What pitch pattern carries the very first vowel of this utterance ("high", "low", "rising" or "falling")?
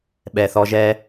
low